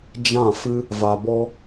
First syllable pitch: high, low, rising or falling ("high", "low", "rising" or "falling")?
falling